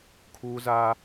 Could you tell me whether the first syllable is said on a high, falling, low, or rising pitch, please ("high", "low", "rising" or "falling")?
high